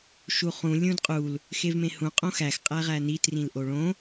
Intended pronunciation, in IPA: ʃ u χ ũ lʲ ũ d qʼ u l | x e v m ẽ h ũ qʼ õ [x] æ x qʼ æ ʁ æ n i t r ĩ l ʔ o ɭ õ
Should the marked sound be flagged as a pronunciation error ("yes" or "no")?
no